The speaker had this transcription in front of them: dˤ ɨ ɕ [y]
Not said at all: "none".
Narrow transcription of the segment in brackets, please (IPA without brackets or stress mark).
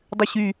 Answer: y